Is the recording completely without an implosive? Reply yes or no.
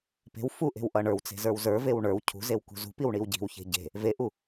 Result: yes